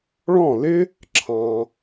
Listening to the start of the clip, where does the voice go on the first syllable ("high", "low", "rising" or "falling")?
falling